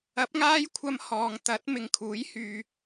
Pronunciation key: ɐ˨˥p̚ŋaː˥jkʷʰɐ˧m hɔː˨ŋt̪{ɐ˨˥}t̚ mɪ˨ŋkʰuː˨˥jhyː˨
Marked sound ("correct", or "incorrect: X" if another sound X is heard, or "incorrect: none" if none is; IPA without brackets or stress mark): correct